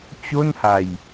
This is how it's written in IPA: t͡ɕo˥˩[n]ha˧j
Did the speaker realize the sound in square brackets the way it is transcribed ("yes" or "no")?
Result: yes